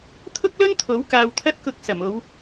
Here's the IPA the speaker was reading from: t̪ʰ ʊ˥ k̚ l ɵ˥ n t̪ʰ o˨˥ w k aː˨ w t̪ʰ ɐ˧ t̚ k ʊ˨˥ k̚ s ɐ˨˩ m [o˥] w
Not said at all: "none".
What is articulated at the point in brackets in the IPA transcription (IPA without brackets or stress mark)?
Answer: o˨˧